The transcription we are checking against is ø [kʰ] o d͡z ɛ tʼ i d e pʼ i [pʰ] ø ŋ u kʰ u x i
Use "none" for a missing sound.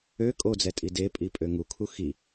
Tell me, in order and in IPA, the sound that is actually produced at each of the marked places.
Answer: kʼ, pʼ

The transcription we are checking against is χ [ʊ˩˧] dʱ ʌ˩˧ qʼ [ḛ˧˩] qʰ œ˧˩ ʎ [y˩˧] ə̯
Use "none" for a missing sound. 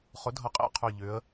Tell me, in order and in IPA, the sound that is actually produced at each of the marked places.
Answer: ʊ˩˧, ḛ˧˩, ʏ˩˧

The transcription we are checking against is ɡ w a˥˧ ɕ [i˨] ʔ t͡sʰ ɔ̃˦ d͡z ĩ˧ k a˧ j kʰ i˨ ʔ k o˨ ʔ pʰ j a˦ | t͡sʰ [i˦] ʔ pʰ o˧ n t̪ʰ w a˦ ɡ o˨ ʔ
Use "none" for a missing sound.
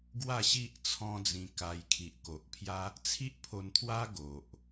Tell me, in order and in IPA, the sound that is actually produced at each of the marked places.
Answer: i˦, i˦

